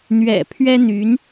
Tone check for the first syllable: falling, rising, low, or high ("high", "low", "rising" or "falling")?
low